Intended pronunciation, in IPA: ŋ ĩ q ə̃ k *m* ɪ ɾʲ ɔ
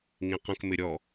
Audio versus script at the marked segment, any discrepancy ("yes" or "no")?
no